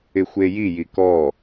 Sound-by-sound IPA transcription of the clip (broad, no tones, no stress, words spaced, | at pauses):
ɪxʷejiji kɔ